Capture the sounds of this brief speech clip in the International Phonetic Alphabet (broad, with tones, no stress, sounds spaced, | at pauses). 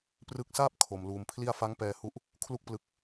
p r ɯ˦˥ k̚ s aː˥˩ p̚ kʰ o˧ m l uː˧ m pʰ l i˥˩ a̯ f a˦˥ ŋ p ɛː˧ h u˦˥ ʔ | kʰ l u˥˩ k̚ p l ɯ˦˥ k̚